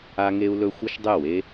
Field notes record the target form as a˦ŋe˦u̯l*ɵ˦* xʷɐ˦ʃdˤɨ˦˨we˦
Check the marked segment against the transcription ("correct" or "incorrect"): correct